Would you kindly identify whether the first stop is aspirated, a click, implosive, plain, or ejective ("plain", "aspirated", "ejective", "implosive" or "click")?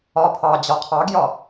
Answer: aspirated